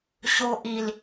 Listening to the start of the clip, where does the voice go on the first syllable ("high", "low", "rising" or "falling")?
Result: low